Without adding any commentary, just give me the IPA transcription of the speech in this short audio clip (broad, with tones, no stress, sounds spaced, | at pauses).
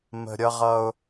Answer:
m ə̤˨ ɾʲ ʌ˦ ʁ ʌ˦ ʊ̯